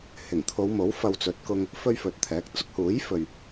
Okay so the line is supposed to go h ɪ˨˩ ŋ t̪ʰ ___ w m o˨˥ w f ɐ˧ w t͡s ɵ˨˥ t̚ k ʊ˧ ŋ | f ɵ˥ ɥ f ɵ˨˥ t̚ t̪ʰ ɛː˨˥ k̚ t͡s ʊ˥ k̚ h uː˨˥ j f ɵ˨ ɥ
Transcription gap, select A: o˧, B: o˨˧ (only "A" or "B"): B